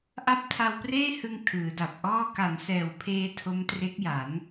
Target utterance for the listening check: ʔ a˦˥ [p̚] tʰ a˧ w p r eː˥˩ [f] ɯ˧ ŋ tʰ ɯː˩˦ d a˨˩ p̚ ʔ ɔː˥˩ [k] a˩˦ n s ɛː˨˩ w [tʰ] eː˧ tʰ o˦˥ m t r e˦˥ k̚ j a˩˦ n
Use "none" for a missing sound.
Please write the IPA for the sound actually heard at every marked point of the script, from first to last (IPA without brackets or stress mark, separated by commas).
p̚, h, k, pʰ